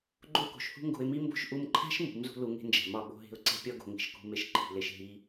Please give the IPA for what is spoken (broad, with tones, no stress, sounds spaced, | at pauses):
ɡ͡ǃ o˦ k o̤˨ ʃ h ṳ˦ ŋ ɡ o̤˧ ɪ̯ m i˦ m b o̤˦ ʃ ʔ u˧ m ǃʰ æ̤˦ ʃ m ṳ˨˦ m z ṳ˦ l u˧ ŋ e̤˦ n d͡ʒ æ̤˨ m ɒ˦˨ ɓ o̤˧ ɦ e̤˧ ʊ̯ ǀ e̤˦ pʲ ɒ˦ ɡ o̤˨ ŋ i̤˨ ʃ k ṳ˧ m e˧ ʃ ǃʰ i̤˨ l e˨ ʃ ɦ i˧